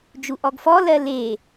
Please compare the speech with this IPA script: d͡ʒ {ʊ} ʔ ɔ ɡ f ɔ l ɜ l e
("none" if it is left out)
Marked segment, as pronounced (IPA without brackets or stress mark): u